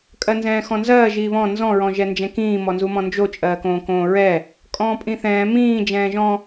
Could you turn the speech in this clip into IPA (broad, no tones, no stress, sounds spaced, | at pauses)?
kʼ ɜ n z ɛ̃ː x ɔ̃ n z ɜː ʒ iː β ɔ̃ n z ɔ̃ ɹ ɔ̃ ʒ ɛ n d͡ʒ ɛ̃ k ĩː m ɔ n z u m ɔ̃ n d͡ʒ o t͡ʃʼ ɜː k õː k õː ɹ ɛ | kʼ ɔ̃ː pʼ ĩ θ ɛ̃ː m ĩː d͡ʒ ɛ̃ː ʒ ɔ̃